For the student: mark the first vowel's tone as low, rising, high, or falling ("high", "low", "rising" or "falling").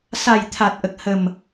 low